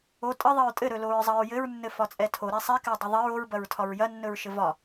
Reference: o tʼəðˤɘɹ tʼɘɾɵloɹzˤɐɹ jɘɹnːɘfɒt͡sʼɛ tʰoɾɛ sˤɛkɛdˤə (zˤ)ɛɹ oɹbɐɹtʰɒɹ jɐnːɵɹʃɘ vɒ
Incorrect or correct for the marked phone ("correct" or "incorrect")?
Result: incorrect